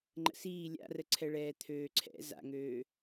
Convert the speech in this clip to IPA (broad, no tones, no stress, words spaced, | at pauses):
ŋ͡ǃə̰siː lʲa̰rəǀʰɛɭɛː t̪ʰøːǀʰɛ̰ za̰ŋøː